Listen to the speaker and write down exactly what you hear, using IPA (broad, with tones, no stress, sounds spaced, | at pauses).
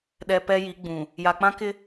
ɗ ɛ˨ p ɛ˦ j i˨˦ ɡ͡b ũ˨ | j a˨ k͡p ã˦ k ɪ˦